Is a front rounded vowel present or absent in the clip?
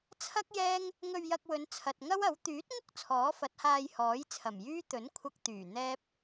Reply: present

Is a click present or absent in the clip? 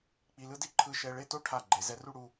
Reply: present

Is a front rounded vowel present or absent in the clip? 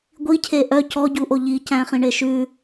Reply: present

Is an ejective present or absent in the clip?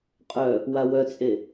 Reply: present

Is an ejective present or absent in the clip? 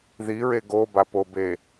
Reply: absent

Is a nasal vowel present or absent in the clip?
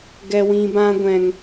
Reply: present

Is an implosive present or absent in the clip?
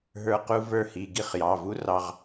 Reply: absent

